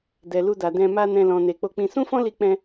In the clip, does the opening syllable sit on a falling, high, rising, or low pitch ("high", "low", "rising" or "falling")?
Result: low